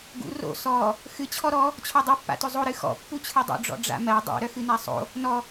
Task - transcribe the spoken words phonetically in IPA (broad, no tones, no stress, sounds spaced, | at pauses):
ɡ ṵ r o̰ s ɔ | x ɨ t͡ɕʰ ɔ ɾ ɔ | t͡ɕʰ ɔ dˤ œ pː a̰ t ɵ zˤ o ɾ ɨ x ɔ̰ pː u t͡ɕʰ ɨ dˤ ṵ ɖ͡ʐ ɔ̰ ɖ͡ʐ a̰ m ɜ dˤ o̰ ɾ œ x ɨ n a sˤ o̰ | n ɔ